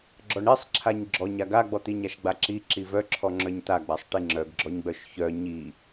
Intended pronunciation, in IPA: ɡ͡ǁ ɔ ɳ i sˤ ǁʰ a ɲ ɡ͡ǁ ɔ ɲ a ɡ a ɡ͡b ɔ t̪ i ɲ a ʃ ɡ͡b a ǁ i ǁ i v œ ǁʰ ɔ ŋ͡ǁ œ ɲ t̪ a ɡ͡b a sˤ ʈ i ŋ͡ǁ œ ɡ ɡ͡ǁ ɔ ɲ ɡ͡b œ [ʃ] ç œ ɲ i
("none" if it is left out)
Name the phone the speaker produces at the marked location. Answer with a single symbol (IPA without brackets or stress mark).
ʃ